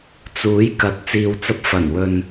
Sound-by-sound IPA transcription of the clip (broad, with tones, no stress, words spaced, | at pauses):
t͡suː˨˥jkɐ˨˥t̚ t͡siː˨wt͡sɐ˧p̚ fɐ˨˩nwɵ˨n